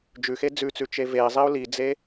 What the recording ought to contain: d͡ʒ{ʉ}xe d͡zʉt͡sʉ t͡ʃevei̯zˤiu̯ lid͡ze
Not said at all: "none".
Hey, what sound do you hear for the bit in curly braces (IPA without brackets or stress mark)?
ʉ